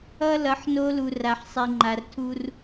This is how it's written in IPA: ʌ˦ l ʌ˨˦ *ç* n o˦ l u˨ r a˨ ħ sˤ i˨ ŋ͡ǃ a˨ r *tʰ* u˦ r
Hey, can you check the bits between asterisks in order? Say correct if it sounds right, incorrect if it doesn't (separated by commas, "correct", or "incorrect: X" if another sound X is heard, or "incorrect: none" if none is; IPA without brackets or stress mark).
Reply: incorrect: ħ, correct